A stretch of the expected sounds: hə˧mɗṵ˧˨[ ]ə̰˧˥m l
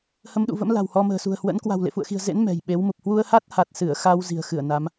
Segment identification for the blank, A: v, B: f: A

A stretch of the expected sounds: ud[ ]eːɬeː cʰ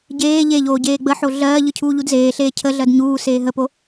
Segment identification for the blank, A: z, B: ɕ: A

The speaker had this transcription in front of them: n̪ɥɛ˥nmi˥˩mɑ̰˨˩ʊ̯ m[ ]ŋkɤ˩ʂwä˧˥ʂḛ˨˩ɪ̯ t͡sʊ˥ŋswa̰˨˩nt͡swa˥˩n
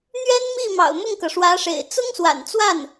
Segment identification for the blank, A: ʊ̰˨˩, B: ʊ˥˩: B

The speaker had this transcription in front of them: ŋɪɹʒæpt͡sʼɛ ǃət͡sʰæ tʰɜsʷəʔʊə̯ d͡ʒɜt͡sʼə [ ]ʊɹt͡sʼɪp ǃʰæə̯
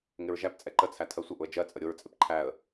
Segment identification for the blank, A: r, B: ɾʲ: B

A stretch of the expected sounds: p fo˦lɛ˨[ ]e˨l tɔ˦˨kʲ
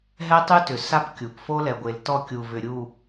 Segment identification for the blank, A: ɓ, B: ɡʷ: B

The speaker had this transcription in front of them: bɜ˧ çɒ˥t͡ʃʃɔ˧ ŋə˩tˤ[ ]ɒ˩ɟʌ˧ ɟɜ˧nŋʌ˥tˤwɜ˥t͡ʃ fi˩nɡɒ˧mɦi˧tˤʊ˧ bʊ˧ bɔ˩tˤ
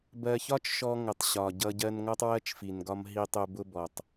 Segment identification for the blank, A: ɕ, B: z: A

